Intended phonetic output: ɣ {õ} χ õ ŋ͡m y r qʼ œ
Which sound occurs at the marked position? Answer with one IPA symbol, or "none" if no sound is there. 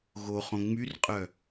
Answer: o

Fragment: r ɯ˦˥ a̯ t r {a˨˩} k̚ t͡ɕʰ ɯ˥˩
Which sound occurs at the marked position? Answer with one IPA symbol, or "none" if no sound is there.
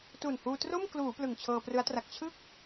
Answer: a˨˩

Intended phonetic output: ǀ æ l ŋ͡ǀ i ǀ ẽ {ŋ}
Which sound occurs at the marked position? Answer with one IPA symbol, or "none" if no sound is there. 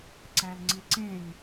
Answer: ŋ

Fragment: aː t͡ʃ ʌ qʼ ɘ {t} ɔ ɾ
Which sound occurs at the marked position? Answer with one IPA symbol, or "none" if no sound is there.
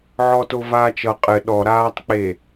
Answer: ɗ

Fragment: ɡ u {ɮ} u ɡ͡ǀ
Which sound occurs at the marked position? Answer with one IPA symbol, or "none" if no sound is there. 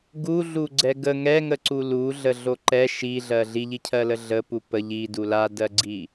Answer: ɮ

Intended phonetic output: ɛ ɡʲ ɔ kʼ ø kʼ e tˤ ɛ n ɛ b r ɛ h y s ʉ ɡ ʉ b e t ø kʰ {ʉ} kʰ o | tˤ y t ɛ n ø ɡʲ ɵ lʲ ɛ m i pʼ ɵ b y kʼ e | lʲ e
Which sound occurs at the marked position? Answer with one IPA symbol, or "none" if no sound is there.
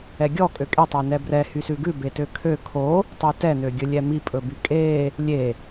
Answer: ø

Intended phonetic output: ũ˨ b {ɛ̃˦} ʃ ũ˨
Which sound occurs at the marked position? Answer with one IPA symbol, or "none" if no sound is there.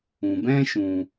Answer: ɛ̃˦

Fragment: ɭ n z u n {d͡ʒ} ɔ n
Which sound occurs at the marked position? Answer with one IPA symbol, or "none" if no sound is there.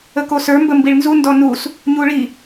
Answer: d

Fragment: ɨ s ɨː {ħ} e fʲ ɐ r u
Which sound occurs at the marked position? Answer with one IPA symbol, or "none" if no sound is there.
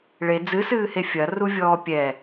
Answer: h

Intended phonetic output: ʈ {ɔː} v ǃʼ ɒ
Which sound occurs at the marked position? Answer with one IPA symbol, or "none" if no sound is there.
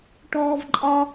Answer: ɔː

